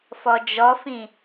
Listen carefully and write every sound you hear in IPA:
f ɔ d͡ʒ ɔ f ĩ

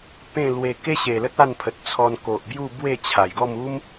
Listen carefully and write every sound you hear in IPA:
p ẽ˥˧ l w e˧ k e˦ ɕ e˨˩ l ə˦ t̚ a˥˧ n pʰ ə˨ t̚ t͡sʰ ɔ˧ n k o˨ ʔ b j u˥˧ b w e˥˧ t͡ɕʰ a˨˩ j ɡ ɔ˥˧ m u˦ m

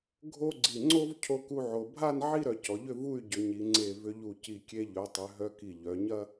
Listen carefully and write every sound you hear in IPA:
ɡʱ o˥ ɡ͡ǀ i˧˩ ŋ͡ǀ o˥ v cʰ o˥ k u˥ ʕ o˧ bʱ a˥˧ n ʕ i˥˧ ɾ œ˧ c ɔ˩˧ ʎ ʏ˥˧ v u˥˧ y̯ ɟ ʏ˩˧ ɲ i˩˧ ŋ͡ǀ e˧˩ v ʏ˧ ʎ u˧˩ c i˧˩ kʲ e˧ ʎ œ˩˧ tˤ ʏ˩˧ ɦ œ˧ k i˧˩ ʎ œ˩˧ ɲ ɐ˥

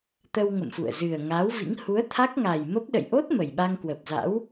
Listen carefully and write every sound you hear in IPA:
t̪ ə˧ w ŋ ə̰˧˨ m f ṵ˧˨ ə̯ z ɨ˨˩ ə̯ ŋ a˨˦ w v ḭ˧˥ ŋ h u˨˦ ə̯ t̪ʰ a˦˥ k̚ ŋ a˨˩ j m ə˦˥ p̚ ɗ ə̰˧˨ j ʔ o˦˥ t̚ m ə˨˩ j ɓ a˧ ŋ k w ə˨˩ p̚ z a̰˧˥ w

